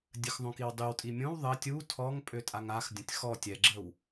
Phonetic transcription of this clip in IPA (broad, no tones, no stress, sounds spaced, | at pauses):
dʲ ə x ðˤ õ k i w dˤ y w tʼ i mʲ õ w ðˤ ə tʲ u tʰ ɔ ŋ pʼ ø tʼ a ŋ a x dʲ ə̃ tʲ x ɔ tʲ ɛ ɡ͡ǁ ə w